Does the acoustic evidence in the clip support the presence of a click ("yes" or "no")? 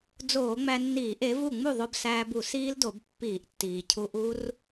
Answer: no